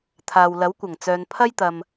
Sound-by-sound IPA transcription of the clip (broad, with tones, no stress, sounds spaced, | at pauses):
t̪ʰ aː˨ w l ɐ˨˥ w kʷ ɐ˨˩ ŋ t͡s œː˨ n pʰ ɐ˥ j t̪ ɐ˨ m